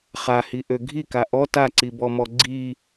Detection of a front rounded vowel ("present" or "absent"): present